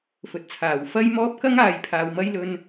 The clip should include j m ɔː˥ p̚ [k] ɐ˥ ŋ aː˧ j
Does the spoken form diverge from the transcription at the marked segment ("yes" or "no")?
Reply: no